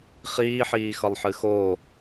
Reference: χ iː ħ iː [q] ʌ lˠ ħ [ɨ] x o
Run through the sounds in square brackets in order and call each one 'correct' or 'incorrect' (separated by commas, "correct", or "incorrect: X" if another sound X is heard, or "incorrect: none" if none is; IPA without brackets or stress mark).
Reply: incorrect: x, correct